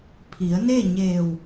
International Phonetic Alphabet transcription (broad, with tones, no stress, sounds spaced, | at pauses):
pʰ i˩˧ ə̯ n e˥˨ ɲ eː˧˩ w